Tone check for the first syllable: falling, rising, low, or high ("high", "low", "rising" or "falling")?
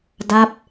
falling